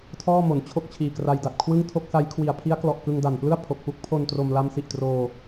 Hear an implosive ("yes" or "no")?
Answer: no